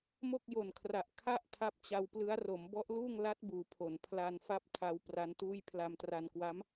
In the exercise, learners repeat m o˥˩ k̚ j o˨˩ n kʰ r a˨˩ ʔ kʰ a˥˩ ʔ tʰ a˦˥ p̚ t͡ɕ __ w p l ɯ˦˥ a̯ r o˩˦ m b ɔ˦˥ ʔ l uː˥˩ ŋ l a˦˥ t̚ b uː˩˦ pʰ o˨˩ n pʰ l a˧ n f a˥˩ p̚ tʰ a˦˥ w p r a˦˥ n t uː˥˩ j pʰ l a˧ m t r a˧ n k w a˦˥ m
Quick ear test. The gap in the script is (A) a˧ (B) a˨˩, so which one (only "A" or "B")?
A